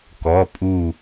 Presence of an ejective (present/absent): present